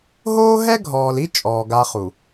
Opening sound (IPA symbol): ɦ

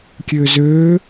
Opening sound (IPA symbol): kʲ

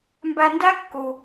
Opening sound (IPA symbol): m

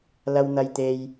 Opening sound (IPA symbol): l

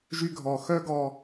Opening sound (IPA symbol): ʒ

